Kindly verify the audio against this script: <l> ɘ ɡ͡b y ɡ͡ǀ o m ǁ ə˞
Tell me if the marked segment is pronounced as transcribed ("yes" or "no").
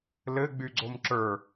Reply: yes